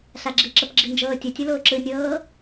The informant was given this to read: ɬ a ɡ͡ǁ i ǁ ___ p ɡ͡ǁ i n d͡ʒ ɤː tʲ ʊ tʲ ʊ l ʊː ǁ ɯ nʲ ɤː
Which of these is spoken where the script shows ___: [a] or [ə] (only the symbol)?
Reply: ə